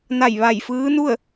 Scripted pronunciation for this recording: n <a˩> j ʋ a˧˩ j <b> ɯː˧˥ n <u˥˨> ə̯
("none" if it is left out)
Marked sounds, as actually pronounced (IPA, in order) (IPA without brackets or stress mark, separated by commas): a˧˩, f, u˥˨